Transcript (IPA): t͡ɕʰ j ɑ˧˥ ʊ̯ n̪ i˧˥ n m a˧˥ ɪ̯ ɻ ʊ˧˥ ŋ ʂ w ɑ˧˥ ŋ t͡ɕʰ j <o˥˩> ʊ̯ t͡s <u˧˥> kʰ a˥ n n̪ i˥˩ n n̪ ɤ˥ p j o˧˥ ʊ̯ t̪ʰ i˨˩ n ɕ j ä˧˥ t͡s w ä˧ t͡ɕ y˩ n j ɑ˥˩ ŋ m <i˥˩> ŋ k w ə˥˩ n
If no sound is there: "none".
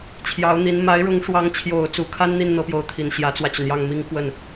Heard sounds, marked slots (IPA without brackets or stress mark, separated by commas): o˨˩, u˧˥, i˥